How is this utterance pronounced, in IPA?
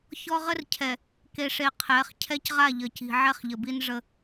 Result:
ç ɔ˦ ʁ ə˦ r cʰ ɛ˨ | k e˨ ʂ e˨ qʰ ɛ˨˦ χ cʰ ɛ˦ c ʁ a˦˨ ʎ ə˨ c i̤˨ ʕ ɛ˦ χ ʎ ə˨ b i˦ n ʐ ə˦

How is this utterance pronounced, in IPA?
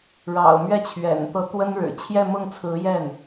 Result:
ɻ ɑ̰˨˩ ʊ̯ m ɥ ɛ˥˩ t͡ɕʰ ɥ ɛ̰˨˩ n t̪ ɤ˧˥ t̪ w ə˥ n ɻ ɻ̩˨˩ t͡ɕʰ j ɛ˥˧ m ʊ˥˩ ŋ t͡sʰ ɹ̩˧˥ j ɛ˥˩ n

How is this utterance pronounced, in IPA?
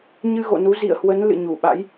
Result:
ɲ ɨ˧ ɣ o̰˧˨ n u˨˦ z ḭ˧˨ ə̯ h w ə˨˦ n l ɨ̰˧˨ ɲ u˧˩ ɓ a̰˧˥ j

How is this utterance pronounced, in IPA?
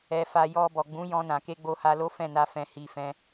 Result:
ɛ˧ f a˧ j ɔ˧ b ɔ˨ ɡ͡b ũ˨˦ j ɔ̃˧ n ã˨ k e˧ ɡ͡b o˧ h a˧ l o˦ f ɛ̃˦˨ n a˧ f ɛ̃˨ h i˨ f ɛ̃˧

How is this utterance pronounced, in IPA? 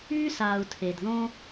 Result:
y˥ s aː˨ u̯ tʰ e˩ d ð õ˥

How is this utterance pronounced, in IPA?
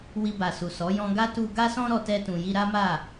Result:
w i˧ b a˨ s u˨ s ɔ˨˦ j ɔ̃˧ ɡ a˦ t u˧ ɡ a˦ s ɔ̃˦ ɾ ɔ˧ t ɛ˧ t ũ˨ j i˧ ɾ a˦ m a˦˨

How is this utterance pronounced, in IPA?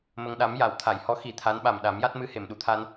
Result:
m ə˧ ŋ ɗ a˧˥ m j a˨˩˨ w t̪ʰ a˨˩˨ j h ɔ˧˥ x i˨˩ t̪ʰ a˧˥ n ɓ a˨˩ m ɗ a˨˩˦ m j a˦˥ t̚ m ɨ˧ h e˨˩˨ m ɗ u˨˩˨ t̪ʰ a˧ n

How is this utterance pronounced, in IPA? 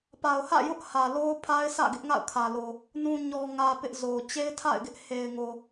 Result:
p a˨ ʊ̯ h ä̰˦˨ j ʊ˦ ʔ h ä˨ l o˦ ʊ̯ pʰ a˦ ɪ̯ sʰ ä̰˦˨ ɡ ɪ˦ ʔ ŋ a̰˦˨ ʊ̯ kʰ ä˨ l o˨ | n ũ˨ ɲ ɔ˨ ŋ ä˨ p ɪ˦ ʔ z o˨ t͡ɕ e˦ ɪ̯ tʰ a̰˦˨ ɪ̯ ɡ ɪ˦ ʔ h e˨ ɪ̯ ŋ o˨

